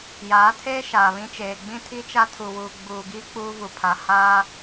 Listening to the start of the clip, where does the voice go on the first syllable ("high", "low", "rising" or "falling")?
rising